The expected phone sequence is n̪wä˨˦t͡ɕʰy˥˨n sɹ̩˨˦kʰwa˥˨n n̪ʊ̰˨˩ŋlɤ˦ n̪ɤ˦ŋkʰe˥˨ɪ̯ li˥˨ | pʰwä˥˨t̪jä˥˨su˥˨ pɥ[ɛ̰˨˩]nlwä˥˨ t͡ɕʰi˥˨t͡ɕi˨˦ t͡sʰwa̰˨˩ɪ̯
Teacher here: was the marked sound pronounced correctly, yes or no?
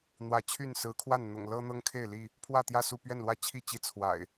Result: no